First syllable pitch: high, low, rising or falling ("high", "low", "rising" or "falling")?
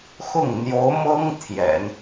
falling